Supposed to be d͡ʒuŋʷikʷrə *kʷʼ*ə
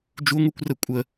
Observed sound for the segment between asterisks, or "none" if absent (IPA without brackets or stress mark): kʷʼ